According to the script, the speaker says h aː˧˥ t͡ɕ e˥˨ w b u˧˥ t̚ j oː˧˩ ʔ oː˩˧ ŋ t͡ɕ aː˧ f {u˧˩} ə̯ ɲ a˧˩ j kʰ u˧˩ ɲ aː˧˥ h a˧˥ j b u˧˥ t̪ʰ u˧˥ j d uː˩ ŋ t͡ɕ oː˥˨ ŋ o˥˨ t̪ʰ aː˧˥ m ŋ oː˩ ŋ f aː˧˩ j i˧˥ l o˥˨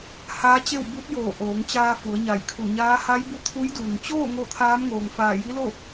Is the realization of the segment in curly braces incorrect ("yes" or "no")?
yes